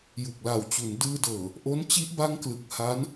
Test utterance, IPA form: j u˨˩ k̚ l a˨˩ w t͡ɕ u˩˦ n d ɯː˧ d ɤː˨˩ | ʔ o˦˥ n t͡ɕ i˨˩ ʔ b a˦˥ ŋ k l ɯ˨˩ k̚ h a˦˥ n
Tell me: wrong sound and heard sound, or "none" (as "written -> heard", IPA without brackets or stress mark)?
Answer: i˨˩ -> i˦˥